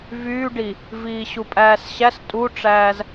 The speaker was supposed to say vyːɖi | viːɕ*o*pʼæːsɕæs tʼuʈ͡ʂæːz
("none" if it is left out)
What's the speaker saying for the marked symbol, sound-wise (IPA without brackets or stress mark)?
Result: u